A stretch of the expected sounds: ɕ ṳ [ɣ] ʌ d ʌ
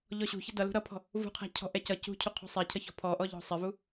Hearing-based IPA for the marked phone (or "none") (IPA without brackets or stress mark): ç